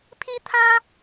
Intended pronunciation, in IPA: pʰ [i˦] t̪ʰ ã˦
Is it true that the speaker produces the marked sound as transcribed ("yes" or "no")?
yes